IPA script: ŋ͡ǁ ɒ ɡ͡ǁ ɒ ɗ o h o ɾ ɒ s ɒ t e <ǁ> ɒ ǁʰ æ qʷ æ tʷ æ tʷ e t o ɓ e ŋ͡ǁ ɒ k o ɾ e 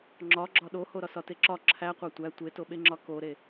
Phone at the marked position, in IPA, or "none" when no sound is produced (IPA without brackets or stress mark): ǁ